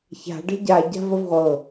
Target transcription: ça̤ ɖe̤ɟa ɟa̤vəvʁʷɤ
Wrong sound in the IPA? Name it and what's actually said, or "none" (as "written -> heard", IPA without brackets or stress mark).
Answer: none